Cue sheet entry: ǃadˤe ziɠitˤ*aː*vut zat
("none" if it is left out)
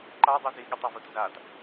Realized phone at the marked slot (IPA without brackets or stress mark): a